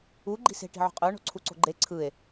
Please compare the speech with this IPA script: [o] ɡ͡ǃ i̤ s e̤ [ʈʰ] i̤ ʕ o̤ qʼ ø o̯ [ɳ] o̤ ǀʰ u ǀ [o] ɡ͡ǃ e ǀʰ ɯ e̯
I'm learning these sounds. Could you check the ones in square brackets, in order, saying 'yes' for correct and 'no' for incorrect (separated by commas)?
no, no, yes, no